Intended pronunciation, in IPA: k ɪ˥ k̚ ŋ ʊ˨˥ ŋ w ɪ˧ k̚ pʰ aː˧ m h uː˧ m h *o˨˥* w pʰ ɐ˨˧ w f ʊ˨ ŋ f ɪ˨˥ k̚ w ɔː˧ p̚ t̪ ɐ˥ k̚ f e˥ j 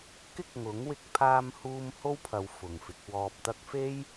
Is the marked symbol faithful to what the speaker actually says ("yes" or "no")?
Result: no